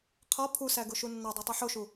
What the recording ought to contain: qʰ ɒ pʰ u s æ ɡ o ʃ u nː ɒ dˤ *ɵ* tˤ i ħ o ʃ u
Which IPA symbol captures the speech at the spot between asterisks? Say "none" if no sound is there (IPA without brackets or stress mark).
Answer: o